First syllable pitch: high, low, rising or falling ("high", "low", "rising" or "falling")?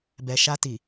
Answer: low